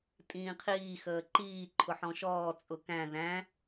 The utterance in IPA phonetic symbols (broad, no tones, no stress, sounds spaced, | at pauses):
tʼ ĩː qʰ iː x əː ǃ iː ǃʰ ʊ ħ ɔ̃ ʃ ɔː t͡sʼ ʊ k æ̃ ð æ̃